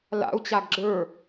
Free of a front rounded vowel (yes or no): yes